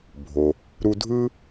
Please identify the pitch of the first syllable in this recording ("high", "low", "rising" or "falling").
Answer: low